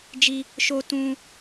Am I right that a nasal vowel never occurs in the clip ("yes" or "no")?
no